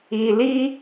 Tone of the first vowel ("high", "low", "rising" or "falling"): low